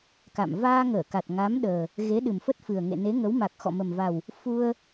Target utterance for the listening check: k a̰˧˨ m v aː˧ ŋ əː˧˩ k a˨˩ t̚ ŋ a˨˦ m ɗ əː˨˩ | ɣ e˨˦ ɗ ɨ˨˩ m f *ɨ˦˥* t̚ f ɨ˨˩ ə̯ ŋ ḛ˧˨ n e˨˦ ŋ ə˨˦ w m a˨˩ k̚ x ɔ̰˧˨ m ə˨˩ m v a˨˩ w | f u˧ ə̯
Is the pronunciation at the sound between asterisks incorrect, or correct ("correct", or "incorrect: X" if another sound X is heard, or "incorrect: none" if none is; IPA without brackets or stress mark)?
incorrect: ə˦˥